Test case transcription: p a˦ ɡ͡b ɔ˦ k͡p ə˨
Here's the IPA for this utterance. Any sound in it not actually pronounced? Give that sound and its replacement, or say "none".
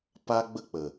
ɔ˦ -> ə˦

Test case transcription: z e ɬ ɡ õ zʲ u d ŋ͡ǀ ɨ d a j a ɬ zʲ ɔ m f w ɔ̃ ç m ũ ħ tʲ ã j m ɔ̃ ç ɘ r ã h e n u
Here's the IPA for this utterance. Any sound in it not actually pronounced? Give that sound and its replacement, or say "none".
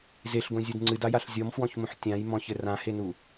none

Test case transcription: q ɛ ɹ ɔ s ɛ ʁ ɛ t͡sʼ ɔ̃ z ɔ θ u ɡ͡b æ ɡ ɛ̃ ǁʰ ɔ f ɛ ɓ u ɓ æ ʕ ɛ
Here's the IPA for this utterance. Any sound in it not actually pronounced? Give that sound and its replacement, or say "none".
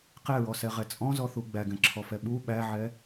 none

